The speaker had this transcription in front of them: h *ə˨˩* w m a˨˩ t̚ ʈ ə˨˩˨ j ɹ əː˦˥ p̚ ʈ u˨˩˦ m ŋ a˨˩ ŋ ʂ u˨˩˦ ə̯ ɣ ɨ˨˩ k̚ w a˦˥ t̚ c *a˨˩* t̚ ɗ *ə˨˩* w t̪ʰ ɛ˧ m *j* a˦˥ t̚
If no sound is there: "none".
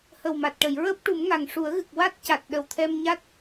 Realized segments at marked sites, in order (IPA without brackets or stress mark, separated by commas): ə˨˩, a˨˩, ə˨˩, ɲ